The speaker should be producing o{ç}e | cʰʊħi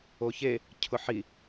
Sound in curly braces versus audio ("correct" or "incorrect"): correct